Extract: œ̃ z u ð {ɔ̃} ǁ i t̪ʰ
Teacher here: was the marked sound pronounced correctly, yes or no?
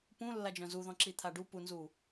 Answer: yes